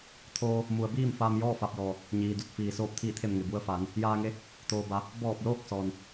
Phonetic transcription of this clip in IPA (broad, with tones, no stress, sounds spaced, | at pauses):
t̪ʰ oː˧ | m u˩ ə̯ b iː˥˨ m f aː˧ m j ɔː˥˨ f a˧ p̚ j ɔː˩ | ɲ iː˩ d u˧˩ t̚ f iː˩ s oː˧˩ p̚ t̪ʰ iː˧˩ t̪ʰ e˧˩ m ŋ e˩ b u˧ ə̯ f aː˩˧ n | j aː˧ ŋ e˧˥ | t̪ oː˩ b a˩˧ | b ɔː˧˩ p̚ l oː˥˨ k̚ s ɔː˩ n